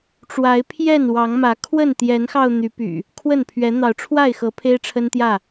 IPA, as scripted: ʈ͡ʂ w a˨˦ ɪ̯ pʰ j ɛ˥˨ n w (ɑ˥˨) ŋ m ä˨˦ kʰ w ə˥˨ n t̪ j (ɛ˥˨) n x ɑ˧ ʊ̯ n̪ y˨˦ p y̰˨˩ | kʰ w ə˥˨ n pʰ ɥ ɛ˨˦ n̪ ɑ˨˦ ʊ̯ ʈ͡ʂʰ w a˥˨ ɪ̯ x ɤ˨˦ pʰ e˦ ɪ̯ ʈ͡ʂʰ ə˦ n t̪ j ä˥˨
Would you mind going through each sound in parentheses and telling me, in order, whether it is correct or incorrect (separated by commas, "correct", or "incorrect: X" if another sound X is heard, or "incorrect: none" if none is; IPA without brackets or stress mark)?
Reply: incorrect: ɑ˨˦, incorrect: ɛ˨˦